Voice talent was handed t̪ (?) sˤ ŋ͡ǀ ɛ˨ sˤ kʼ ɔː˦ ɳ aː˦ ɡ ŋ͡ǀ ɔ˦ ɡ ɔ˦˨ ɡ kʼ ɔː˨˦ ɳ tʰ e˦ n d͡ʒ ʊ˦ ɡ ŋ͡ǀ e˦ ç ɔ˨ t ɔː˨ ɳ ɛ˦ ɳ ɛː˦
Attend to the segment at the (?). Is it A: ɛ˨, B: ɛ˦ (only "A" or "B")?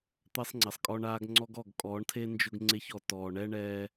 B